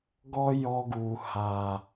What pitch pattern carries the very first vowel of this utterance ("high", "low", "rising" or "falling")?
high